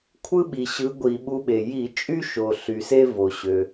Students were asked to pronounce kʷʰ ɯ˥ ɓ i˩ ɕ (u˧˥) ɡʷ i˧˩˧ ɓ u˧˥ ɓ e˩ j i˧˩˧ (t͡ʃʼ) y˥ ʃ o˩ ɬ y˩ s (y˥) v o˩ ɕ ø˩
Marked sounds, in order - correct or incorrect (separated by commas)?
incorrect, correct, incorrect